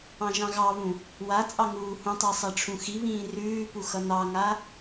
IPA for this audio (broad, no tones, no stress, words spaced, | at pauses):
ɑ̃ʒɑ̃ɣɑβũ | wa t͡sʼɑŋuːhũtˤa sˤaʈ͡ʂʰũxiβĩː rʉːpu xʌnɑŋa